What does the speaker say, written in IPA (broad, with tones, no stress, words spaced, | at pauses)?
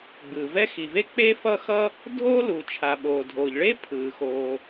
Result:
ɡ͡bɯː˩vɛ˥ xi˩ve˥k͡pe˥ fʌ˥xʌ˥ | dʱoː˥luː˩t͡ʃʰa˩ɓoː˩ dʱoː˩ʎɭe˥pʰɯː˩ xoː˩